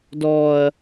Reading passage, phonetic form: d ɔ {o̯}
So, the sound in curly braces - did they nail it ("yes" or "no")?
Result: no